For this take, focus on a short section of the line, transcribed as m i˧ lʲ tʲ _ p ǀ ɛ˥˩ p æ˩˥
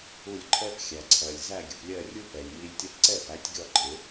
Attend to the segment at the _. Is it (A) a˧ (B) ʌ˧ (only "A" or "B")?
B